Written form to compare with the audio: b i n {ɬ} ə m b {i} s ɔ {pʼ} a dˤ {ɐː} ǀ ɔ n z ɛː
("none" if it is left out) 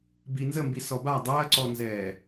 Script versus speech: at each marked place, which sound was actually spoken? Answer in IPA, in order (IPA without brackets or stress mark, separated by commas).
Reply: z, i, b, ɐː